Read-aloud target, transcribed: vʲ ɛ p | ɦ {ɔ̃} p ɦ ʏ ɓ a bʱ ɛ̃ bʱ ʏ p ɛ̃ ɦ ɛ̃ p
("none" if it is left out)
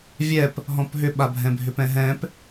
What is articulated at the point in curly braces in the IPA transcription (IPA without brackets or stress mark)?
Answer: ɔ̃